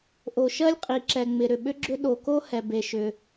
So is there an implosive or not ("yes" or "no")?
yes